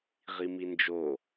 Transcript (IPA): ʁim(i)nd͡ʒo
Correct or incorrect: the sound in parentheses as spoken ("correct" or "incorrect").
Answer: correct